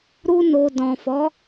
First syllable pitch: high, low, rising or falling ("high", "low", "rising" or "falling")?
high